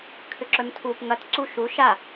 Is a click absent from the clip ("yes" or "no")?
no